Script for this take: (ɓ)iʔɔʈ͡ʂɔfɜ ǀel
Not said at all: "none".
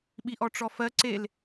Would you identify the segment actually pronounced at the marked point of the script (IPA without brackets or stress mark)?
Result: ɓ